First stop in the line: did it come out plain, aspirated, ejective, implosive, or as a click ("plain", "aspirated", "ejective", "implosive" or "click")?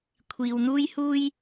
aspirated